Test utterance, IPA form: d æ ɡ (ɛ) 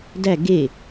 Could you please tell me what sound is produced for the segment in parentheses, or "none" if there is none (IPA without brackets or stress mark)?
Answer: e